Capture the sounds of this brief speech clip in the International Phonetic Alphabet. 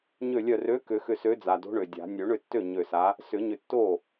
ɲ ø˧˩ lʲ œ˧˩ r ø˨˥ k ʏ˨˩˦ x ʏ˧˩ s ø˨˥ d͡z a˩ d o̤˨˥ ɳ ø˩ dʲ a̤˨˩˦ nʲ ø˨˩˦ ɳ ʏ˥˩ tː ø˥˩ ɲ ø˧˩ s a˨˥ | s ʏ˨˩˦ ɲ ʏ˧˩ tː o˥˩

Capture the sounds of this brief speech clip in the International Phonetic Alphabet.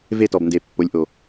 v e˦˨ t ɔ˨ b n d e˨ pː o˨˦ lʲ ʔ o˨

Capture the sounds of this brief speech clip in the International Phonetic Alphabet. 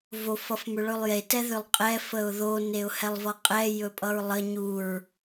v o f ʌ f m ʏ ɭ ɵ lˠ j e t ɛ ð ʏ lˠ qʼ ɛ f ə ʊ̯ ð o n e ʊ̯ h ɛ lˠ v ʌ qʼ ɛ j ɵ pʼ ʌ ɹ lˠ ə ɲ u ɹ

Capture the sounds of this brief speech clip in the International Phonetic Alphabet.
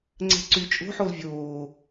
ŋ͡ǀ ɛ̤ ǀ y t͡ʃʼ o̤ ħ o l vʲ oː

